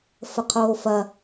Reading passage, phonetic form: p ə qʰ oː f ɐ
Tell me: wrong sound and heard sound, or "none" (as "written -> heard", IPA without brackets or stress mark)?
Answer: p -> f